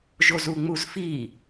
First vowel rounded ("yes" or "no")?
yes